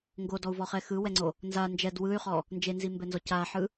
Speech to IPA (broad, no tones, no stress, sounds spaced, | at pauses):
ŋ ɡ o d ɔ u̯ v ɔ χ ɛ x ɯ w ɛ ŋ͡ǀ o | n z a n d͡ʒ ɛ d w ɯ y̯ χ ɔ | n d͡ʒ e n z i m b ɛ n z ɔ c a ħ ɯ